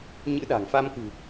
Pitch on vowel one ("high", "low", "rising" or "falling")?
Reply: rising